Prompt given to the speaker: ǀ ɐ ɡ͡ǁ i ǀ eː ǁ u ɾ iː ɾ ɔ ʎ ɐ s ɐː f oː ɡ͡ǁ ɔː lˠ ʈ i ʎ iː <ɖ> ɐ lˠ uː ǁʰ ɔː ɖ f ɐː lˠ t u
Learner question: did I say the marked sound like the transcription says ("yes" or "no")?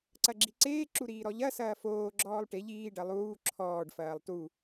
yes